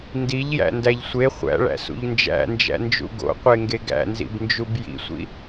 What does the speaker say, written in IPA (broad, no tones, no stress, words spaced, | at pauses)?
ndiʎjæ̰ndæʎ sʷe χʷæ̰ɭæ̰sṵʎ nd͡ʒæ̰nd͡ʒæ̰nd͡ʒṵ ɡo̰qʷeŋɡe ɡæ̰nzḭbnd͡ʒub jḭsʷḭ